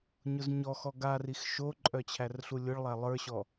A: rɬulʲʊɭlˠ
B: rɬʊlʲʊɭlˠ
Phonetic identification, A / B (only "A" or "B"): A